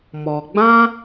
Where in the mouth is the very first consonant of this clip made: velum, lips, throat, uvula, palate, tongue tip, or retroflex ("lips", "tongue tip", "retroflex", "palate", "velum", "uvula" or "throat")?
lips